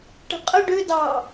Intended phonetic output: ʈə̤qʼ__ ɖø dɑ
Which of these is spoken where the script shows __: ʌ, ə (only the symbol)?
ə